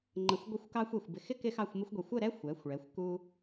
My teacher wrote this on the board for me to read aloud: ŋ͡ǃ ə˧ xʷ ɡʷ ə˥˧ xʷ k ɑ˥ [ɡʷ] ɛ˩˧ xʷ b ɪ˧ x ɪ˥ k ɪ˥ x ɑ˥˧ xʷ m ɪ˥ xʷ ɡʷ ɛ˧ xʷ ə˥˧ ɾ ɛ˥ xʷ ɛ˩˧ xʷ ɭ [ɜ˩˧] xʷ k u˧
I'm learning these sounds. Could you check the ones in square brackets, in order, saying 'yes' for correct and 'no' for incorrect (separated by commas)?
no, no